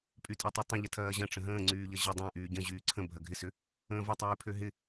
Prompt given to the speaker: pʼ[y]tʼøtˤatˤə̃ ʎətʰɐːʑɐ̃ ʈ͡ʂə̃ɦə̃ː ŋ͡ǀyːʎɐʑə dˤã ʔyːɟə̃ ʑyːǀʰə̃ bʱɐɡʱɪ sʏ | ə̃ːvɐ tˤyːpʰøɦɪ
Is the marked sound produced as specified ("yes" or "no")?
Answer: yes